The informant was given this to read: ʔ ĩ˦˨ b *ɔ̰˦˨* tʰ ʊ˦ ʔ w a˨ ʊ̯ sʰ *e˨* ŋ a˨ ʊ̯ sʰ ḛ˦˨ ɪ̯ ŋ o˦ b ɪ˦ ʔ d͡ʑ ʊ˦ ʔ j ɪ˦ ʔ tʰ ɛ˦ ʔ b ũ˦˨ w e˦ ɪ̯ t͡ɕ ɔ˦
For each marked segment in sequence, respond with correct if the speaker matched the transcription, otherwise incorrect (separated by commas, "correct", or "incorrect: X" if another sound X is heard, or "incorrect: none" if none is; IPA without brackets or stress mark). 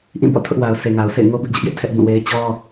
correct, correct